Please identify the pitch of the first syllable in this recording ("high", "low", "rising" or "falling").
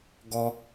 high